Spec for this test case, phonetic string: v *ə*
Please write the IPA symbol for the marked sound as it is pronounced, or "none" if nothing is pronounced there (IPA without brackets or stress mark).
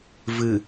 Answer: ɨ